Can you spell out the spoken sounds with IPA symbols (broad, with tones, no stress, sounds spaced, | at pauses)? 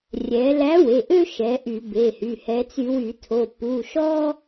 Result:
rʲ ɛ˩˧ l æ˨˥ w e˩˧˩ ʔ ø˦ ʃ ɛ˩˧ ʔ y˧˩˧ b e˩˧˩ h y˩˧˩ h ɛ˩˧ t͡s y˧˩˧ w y˧˩˧ tʰ o˩˧˩ p u˩˧˩ ʃ ɔ˦